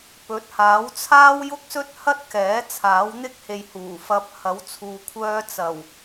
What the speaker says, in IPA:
p ɵ˨˥ t̚ h aː˨˥ w t͡sʰ aː˥ w j ʊ˥ k̚ s ɵ˥ t̚ h ɐ˥ t̚ k ɛː˨˥ t͡sʰ aː˨˥ w n̪ ɪ˥ k̚ h e˨ j h uː˨˩ f ɐ˧ p̚ h ɐ˨˥ w t͡sʰ uː˨ kʷʰ œː˧ t͡s ɐ˨˩ w

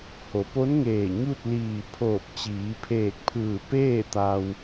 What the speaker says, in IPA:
h o˩˧ p o˧˥ n ŋ eː˧˩ ɲ u˥˨ t̚ l iː˧˩ pʰ oː˧˩ p̚ t͡ɕ iː˩˧ pʰ eː˧˩ k̚ pʰ ɯː˧˩ p eː˥˨ t̪ a˧ w

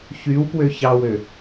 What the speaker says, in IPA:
ç y w p w ø ç ɑ w ø

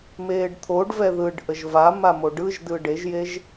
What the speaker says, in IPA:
m eː ɖ t̪ʰ o ɖ v ɛ ð ɯ ɖ ʔ ə ʒ v a m a m o ɖ ɯ ʒ d ɯ ɖ e ʒ j e ʒ

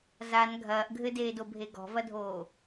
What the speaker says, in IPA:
z a n ɡʱ ɐː ʔ ɡʱ ɘ d eː d o bʱ e ɡ ɔ̤ v ɐ dʱ oː

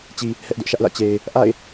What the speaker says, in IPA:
t͡ɕ i˨ | h ɛ˦ ʔ d ʊ˦ ʔ ʃ ä˦ ʔ l ä̰˦˨ t͡ɕ e˨ ɪ̯ | ʔ a̰˦˨ ɪ̯

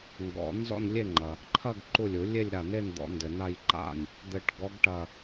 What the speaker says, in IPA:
ŋ ɡ ɔ̰˨˩˦ n z ɔ̰˥˧ n lʲ e˥˧ ŋ͡ǃ ɐ˩ | ǃʰ ɐ˥˧ ɡ ǃ u˧˩ lʲ u˨˩˦ lʲ e˥˧ lʲ ɾ a˧˩ n e˥˧ n d̪ ɔ̰˨˩˦ n d ɘ˩ n a˥˧ j ǃ a̰˥˩ nʲ | d̪ ɘ˧˩ ʈ ɡ ɔ˧˥ ɡ ʈ ɐ˧˩

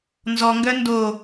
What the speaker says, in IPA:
n z ɔ ŋ ɡ œ n d o

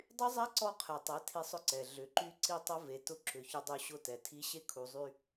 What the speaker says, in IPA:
dˤ y˦ zˤ a˦ ǀ ɔ˦ qʰ ɛ˨ tˤ ɛ˨˦ tʰ i˦ sˤ ʊ˦ ǀ ɛ˨ ɮ ʏ˨ ǃ y˦ ǀ i˦ tˤ ʊ˦ v e˨ t ʊ˦ ǁ ʏ˨ ç ʏ˦ dˤ u˦ ɕ ʊ˦ t ɛ˨ tʰ i˦ ɕ e˦ kʰ u˨ zˤ y˦

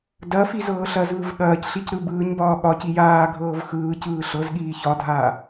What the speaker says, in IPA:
d ɐ f i z ɤː ɬ ɐ z ɯː v ɠ ɐː c ɬ i c ɾ ɯ b ɯː ɲ b ɒː ɠ ɒ c i j aː ɡʱ ɤː v x ɯː c ɯː ɬ ɤ z ɠ iː ç ɒ dʱ aː

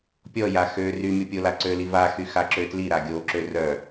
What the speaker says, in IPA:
pʲ ɔ j a x ø r y mʲ ɔ pʲ o l a ǀ ø l i v a x y x a ǁ ø t l i ɾ a ɡʲ o ǁ ø r œ

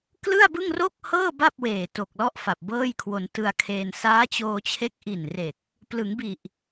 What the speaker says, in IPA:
k l ɯ˥˩ a̯ b ɯ˥˩ ŋ r o˥˩ k̚ h ɤː˥˩ b a˥˩ p̚ w eː˨˩ t o˨˩ k̚ l ɔ˥˩ ʔ f a˨˩ p̚ b ɤː˥˩ j kʰ w o˧ n t ɯ˧ a̯ kʰ eː˧ n s aː˦˥ t͡ɕ oː˧ t͡ɕʰ e˦˥ k̚ ʔ i˨˩ n r e˨˩ k̚ | p l ɯ˩˦ ŋ b i˨˩ ʔ

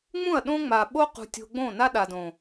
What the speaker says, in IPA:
ŋ͡m ũ˦˨ ɐ̯ ɗ õ˦ ŋ͡m a˨ ɓ o˦ q ṳ˨ tʲ o̤˦ ɡ͡b õ˦˨ n a˦ ɗ a˨ d õ˨

